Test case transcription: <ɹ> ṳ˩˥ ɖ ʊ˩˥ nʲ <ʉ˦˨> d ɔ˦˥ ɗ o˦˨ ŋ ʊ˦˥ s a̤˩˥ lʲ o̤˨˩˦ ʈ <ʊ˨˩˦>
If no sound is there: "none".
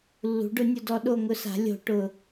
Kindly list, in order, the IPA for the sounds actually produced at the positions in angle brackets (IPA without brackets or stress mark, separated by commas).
lː, ʊ˦˨, ʊ˦˨